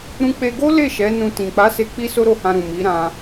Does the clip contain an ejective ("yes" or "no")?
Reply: no